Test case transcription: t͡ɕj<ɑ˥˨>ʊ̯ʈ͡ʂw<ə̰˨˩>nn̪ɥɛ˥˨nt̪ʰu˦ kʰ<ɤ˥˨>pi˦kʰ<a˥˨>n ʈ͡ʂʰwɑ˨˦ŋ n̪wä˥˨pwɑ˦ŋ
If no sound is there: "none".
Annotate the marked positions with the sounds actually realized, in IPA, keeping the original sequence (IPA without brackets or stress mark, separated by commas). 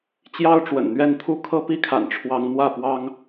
ɑ˦, ə̰˨˩, ɤ˥˨, a̰˨˩